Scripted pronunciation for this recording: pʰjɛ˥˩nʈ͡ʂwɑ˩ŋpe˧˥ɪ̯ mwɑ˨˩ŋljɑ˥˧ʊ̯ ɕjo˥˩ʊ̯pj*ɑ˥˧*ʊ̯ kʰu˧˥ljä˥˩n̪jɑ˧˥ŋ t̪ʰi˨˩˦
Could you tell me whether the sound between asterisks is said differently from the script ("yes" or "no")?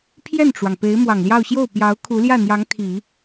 yes